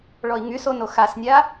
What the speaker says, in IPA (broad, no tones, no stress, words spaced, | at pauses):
ɭɔi̯ŋyson oxasnʲa